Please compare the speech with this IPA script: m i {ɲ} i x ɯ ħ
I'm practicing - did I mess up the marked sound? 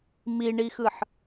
yes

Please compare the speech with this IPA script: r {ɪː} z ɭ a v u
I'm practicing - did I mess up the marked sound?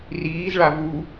yes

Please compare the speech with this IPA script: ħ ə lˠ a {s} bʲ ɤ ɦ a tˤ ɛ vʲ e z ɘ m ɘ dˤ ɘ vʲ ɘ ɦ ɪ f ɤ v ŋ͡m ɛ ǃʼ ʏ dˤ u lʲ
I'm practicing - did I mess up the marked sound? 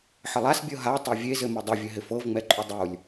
no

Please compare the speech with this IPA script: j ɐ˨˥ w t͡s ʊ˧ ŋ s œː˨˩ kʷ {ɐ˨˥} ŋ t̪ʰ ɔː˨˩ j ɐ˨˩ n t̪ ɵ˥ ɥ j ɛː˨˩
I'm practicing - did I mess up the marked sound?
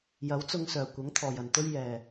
no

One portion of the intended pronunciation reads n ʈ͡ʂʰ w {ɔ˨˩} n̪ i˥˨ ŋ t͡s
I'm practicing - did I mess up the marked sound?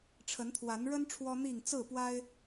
yes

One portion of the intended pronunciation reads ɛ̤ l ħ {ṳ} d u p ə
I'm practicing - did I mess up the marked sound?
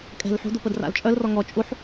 no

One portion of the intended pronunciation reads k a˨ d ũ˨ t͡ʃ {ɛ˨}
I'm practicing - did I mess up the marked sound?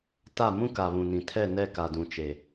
yes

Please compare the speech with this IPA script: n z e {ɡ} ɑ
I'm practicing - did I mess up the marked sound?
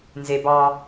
yes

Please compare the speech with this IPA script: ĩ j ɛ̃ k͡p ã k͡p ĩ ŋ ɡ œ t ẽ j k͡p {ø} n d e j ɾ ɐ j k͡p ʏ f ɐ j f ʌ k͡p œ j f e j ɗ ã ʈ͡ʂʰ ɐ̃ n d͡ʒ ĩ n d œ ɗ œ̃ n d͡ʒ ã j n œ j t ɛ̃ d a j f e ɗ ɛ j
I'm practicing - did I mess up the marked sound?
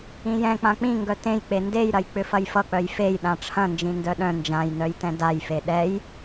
yes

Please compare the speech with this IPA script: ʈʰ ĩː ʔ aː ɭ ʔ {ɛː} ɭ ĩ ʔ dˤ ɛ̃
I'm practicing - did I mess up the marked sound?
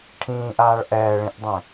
no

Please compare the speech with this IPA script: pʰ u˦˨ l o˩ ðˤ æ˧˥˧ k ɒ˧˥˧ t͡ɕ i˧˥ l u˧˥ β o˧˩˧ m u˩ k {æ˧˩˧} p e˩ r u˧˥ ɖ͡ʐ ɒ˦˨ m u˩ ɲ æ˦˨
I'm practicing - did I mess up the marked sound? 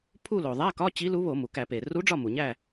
no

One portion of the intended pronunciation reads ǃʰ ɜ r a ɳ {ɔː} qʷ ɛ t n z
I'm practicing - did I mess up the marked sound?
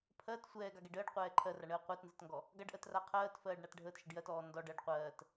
yes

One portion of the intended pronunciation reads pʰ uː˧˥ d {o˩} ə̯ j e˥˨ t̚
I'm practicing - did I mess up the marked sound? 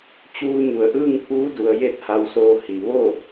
yes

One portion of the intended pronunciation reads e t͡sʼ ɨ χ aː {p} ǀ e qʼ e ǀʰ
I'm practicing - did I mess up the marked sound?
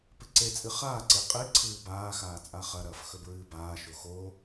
yes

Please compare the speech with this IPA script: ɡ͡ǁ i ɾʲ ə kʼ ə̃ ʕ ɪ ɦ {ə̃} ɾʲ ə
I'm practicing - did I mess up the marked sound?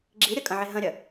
no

